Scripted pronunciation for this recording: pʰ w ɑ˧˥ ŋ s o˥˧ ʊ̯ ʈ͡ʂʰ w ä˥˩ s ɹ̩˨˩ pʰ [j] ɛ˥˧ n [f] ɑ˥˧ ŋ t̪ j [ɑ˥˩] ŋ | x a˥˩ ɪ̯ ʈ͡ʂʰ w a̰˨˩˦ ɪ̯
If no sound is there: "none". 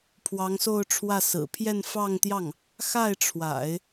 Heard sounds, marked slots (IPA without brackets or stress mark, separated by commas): j, f, ɑ˥˩